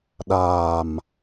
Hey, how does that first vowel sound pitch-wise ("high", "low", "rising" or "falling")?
low